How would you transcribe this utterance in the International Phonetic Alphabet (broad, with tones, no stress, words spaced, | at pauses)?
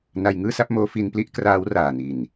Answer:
na˧jŋɯː˥˩sa˥˩p̚moː˦˥ fi˧npli˥˩ʔ kraː˦˥w raː˨˩ni˨˩n